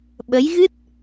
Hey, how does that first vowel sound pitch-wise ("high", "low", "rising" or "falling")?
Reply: rising